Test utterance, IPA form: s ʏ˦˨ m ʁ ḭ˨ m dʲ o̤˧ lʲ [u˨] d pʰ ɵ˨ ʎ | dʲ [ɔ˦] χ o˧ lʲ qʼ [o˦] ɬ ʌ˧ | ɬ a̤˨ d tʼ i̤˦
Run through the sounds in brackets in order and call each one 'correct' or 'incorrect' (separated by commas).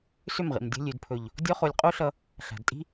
incorrect, correct, correct